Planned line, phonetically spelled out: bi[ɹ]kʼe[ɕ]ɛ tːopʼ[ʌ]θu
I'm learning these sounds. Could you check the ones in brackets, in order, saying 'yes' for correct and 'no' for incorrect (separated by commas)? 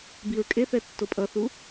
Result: yes, no, yes